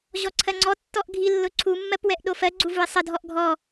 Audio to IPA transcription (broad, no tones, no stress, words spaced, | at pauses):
ʑɔǀʰɜŋ͡ǀɔ tːɔʔɡʱilːʊ ǀʰumːɜpwɛʔ ɗofɜɡ͡ǀu vuɪ̯sˤədʱɔʔ ɡʱɔ